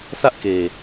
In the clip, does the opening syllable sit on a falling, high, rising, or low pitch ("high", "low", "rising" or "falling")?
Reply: high